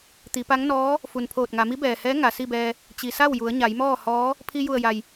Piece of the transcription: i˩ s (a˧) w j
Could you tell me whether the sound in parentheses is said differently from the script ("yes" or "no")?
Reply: yes